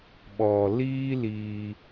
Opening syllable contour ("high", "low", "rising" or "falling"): low